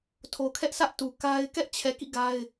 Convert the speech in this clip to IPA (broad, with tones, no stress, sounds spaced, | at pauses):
tʰ o˨ kʰ ɛ˦ ʔ s ä˦ ʔ t u˨ k a˦ ɪ̯ k ɛ˦ ʔ t͡ɕʰ ɛ˨ k ḭ˦˨ ɡ a˦ ɪ̯